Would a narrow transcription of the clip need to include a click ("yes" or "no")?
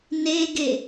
no